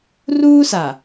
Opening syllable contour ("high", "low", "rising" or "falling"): high